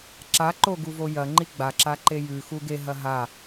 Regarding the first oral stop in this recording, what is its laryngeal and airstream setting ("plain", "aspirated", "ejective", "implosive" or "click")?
click